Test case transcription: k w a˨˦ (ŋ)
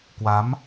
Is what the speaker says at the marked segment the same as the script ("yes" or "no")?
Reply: no